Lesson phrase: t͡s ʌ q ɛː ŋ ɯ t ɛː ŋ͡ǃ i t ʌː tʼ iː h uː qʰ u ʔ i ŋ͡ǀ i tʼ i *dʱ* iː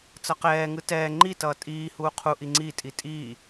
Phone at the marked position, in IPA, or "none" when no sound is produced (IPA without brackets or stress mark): tʼ